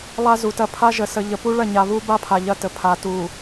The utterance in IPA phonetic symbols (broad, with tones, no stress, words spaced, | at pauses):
lˠa˦zu˨tɐ˦ pʰa˦ ʒə˨sə˨ ʎə˨pu˦ɭɐ˦˨ɲa˨ βu˦ba˦pʰa˨ ʎɐ˦tə˨ pʰa˨tu˨